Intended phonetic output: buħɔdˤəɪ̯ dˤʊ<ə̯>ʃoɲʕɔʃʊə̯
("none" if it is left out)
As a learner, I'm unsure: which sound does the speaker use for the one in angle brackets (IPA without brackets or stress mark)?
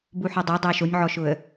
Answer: ɪ̯